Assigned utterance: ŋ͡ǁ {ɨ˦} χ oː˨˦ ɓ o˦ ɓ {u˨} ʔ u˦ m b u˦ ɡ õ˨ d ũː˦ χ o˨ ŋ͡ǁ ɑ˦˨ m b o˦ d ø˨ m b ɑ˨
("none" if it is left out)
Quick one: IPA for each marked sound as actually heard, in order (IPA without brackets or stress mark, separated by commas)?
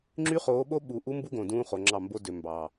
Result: y˦, u˨